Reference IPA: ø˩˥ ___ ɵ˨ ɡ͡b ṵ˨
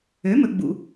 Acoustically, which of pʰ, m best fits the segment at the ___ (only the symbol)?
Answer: m